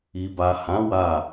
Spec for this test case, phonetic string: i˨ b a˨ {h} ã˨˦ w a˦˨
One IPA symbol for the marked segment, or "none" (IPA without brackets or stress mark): h